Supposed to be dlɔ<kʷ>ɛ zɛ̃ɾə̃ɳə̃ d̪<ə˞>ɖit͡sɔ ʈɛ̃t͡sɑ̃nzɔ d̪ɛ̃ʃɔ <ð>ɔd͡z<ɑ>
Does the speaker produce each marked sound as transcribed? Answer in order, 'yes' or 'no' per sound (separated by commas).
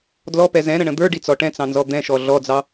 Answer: no, yes, no, yes